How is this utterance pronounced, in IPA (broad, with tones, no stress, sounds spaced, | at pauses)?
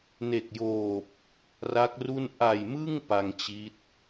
n e˨˩ k̚ j oː˨˩ p̚ | r a˦˥ k̚ r u˥˩ n ʔ a˨˩ j m ɯ˥˩ ŋ p a˧ ŋ t͡ɕ i˦˥ t̚